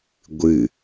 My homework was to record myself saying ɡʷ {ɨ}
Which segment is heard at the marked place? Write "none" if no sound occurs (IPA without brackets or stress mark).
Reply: ɨ